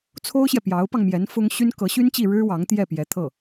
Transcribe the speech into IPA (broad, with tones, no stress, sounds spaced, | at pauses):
t͡sʰ o˥ ʊ̯ ɕ j ɛ˨ p j ɑ˧˥ ʊ̯ p ɑ˧ ŋ m j ɛ˧˥ n f ʊ˥ ŋ ɕ y˥ n k ɤ˧˥ ɕ y˥ n t͡ɕ i˥˩ ɻ ɻ̩˥ w ɑ˧˥ ŋ t̪ j ɛ˥˩ p j ɛ˧˥ t̪ʰ ɤ˥˩